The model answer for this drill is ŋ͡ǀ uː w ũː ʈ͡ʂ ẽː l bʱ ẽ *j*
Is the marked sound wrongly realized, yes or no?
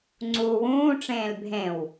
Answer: yes